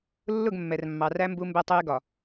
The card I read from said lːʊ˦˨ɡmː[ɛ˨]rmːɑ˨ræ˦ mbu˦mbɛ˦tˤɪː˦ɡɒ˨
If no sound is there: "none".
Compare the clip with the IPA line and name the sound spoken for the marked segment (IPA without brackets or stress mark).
ɛ˨